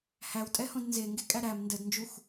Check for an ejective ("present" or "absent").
present